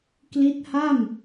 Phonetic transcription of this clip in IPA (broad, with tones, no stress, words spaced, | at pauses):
kli˦˥t̚ha˥˩m